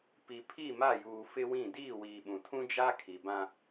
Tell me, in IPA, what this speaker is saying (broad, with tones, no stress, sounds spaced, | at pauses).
p i˨ pʰ i˦˨ m a˦˨ j uː˨ f ɪ˦ w ĩ˦˨ d iː˦˨ w iː˨ ɓ ũ˨ tʰ ũ˦ d͡ʒ a˦ kʰ i˨ b ã˦